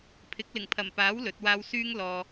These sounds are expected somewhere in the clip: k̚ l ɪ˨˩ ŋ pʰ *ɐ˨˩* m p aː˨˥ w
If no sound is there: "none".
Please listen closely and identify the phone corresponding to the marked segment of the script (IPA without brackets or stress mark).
ɐ˨˩